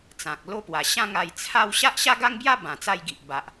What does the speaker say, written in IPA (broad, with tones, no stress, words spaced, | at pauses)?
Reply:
t͡sã˨k̚ lo˦pwa˨˩ ɕã˥˧ŋ a˧j t͡sʰa˥˧w ɕa˦ʔɕa˦ɡa˦ŋbja˦ bã˨˩ t͡sa˥˧jɡi˨ʔ ba˨ʔ